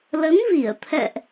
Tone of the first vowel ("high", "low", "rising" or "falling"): rising